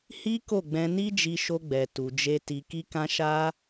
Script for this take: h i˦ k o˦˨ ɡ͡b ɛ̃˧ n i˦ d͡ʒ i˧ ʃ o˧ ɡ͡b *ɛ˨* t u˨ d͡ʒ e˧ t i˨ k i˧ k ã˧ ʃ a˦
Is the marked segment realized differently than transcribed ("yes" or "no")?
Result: no